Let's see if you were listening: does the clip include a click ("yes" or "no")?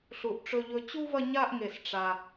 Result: no